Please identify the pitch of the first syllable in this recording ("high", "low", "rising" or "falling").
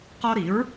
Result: high